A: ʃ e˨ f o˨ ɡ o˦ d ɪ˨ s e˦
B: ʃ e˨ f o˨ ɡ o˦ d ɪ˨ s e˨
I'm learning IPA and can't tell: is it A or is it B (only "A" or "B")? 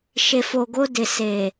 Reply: B